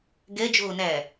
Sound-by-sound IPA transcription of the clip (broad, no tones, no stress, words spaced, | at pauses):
ɡɛd͡ʒoːnæ